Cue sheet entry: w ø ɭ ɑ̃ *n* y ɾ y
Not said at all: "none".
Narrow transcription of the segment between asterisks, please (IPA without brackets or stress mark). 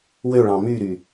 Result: m